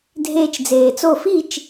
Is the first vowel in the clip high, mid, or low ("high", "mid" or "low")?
mid